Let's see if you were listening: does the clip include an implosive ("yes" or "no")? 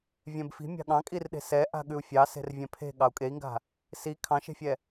yes